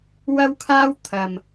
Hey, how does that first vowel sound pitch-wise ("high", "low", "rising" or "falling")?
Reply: high